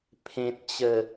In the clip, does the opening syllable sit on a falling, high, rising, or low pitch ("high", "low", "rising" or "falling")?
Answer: low